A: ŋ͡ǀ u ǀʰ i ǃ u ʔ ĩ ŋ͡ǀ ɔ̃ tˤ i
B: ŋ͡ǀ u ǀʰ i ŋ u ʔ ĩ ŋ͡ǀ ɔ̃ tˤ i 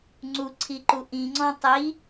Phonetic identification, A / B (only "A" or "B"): A